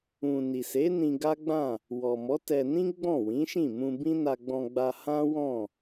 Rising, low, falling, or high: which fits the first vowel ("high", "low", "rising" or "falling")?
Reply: low